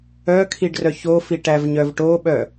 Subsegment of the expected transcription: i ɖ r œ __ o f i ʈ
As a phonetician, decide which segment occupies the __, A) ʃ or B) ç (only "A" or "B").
B